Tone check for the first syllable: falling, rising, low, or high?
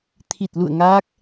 low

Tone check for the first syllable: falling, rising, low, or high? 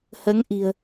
rising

